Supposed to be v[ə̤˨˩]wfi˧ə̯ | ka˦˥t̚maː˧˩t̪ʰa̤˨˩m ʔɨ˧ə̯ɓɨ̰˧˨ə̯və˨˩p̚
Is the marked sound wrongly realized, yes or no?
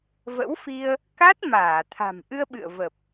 yes